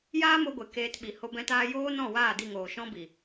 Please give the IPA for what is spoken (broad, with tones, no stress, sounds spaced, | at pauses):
j aː˦ m o˧ ɡʷ e˨ k eː˧ t ɓ i˨ h o˧ b ɛ̃˧ t aː˧ j oː˦ n ɔ̃˦˨ w aː˦˨ d i˦˨ ŋ oː˨ ʃ ɔ̃˦ b i˨